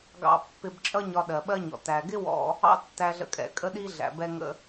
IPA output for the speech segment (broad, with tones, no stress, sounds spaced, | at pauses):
ɡ ɑ̰˧ pː ɪ˧ b t͡ʃʼ ʌ˥ ɲ ɒ˧ ɗ ɜ˩ ɓ ɜ˥ ɲ ɔ̰˩ t æ˩ ɡ ɪ˥ w ɔ̰˧ | ɑ̰˥ tː æ˧ ɮ ə̰˧ kʼ ɛ̰˩ kʼ ə˥ ɗ i˥ ɮ æ̰˩ b ɛ˧ ŋ ə̰˧